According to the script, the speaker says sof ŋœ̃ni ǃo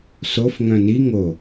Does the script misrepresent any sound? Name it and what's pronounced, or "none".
ǃ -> ŋ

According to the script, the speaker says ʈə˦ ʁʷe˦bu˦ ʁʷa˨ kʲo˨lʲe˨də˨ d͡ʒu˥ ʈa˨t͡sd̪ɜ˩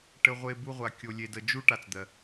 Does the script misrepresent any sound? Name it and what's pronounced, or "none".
none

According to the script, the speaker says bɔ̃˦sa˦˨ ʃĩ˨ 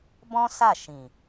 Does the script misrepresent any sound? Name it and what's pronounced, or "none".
none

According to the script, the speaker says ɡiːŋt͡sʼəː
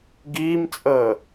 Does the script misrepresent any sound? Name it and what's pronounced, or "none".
ŋ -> m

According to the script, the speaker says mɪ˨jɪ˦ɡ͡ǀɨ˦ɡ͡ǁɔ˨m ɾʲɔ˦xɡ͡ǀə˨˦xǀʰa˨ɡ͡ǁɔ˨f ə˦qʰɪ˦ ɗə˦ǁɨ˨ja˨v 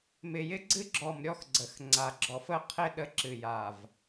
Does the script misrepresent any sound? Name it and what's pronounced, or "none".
ǀʰ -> ŋ͡ǀ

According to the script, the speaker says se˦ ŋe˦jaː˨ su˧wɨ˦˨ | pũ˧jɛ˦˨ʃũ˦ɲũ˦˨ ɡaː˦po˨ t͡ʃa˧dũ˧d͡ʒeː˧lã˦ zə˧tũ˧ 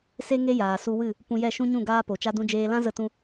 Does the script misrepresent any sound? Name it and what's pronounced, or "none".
none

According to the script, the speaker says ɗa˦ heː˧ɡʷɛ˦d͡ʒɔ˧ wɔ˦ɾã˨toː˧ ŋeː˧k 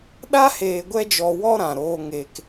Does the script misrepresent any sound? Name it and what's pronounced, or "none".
t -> ɾ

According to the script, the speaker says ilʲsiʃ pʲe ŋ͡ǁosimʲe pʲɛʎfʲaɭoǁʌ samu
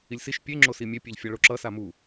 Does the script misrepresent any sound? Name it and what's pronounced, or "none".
none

